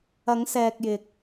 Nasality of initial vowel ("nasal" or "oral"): oral